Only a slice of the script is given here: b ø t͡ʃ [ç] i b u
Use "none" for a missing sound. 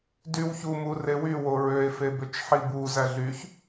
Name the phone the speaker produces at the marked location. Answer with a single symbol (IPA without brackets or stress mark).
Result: ħ